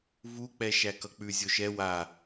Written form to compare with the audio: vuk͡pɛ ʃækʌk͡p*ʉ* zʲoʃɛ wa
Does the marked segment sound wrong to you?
no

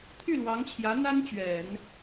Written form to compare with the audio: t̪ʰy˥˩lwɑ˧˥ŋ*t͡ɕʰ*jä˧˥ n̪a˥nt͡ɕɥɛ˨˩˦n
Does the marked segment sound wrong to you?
no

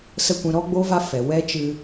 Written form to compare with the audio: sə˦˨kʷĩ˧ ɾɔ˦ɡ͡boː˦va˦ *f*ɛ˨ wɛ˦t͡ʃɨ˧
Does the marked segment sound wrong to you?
no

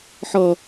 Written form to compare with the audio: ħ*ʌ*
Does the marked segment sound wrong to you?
no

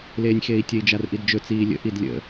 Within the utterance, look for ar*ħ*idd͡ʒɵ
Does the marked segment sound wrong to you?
yes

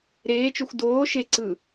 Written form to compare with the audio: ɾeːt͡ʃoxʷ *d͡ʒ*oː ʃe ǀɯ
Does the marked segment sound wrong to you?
yes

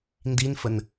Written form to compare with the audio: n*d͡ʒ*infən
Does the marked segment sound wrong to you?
yes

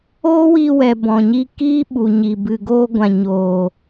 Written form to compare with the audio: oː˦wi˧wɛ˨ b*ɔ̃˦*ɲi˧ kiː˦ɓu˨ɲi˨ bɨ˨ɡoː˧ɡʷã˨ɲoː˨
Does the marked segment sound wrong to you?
yes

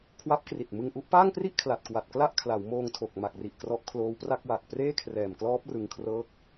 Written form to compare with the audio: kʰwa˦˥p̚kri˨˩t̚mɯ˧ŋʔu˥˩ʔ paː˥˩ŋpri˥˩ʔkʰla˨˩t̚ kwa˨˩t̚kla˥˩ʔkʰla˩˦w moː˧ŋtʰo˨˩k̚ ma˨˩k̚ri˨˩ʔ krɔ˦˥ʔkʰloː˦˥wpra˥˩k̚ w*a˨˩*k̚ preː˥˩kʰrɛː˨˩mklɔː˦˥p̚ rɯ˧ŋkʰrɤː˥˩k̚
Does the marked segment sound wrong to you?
no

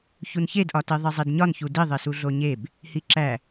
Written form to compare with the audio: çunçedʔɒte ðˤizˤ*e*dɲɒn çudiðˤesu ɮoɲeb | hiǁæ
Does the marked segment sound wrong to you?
yes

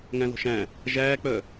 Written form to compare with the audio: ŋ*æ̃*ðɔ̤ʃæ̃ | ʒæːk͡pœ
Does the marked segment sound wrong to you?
no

